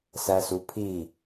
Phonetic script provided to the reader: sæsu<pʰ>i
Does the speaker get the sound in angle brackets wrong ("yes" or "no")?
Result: no